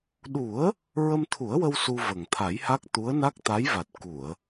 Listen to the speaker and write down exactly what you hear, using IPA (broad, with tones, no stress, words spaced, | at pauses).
ɗu˨˩˦ə̯ | ɹə˧mt̪ʰu˨˩˦ə̯wə˧w su˧və˨˩ŋ t̪ʰa˨˩˦jha˦˥k̚ t̪u˧˥ə̯na˦˥k̚t̪a˧˥jva˨˩t̚ ku˨˩˨ə̯